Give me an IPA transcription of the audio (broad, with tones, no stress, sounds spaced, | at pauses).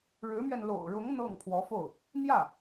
ɻ ɻ̩˧˥ m ɥ ɛ˧ n l o̰˨˩ ʊ̯ ɻ ʊ˧˥ ŋ n̪ ɤ˥˩ ŋ pʰ w ɔ˧˥ f o˥˩ ʊ̯ | n̪ j ä˥˩